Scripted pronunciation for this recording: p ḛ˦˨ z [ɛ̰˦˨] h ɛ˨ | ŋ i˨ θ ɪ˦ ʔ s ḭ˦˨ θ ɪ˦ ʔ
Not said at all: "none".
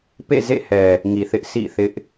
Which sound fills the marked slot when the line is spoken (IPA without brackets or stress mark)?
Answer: ḛ˦˨